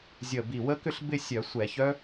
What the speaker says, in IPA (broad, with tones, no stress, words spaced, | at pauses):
zʲəː˧˩bi˧˩ wə˦˥kʏ˥˧ɬ bɪ˥˧sʲœ˧˩˧ sʷɛ˧˩˧çœ˦˥